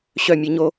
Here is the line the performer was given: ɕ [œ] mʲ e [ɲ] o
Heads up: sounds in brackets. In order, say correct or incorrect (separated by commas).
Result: correct, correct